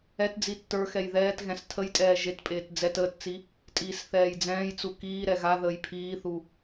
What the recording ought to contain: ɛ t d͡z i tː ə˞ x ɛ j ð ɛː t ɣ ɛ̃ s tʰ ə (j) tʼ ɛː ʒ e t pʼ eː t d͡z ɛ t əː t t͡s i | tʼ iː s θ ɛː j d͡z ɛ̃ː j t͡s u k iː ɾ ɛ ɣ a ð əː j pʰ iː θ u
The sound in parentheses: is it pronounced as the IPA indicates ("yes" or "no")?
yes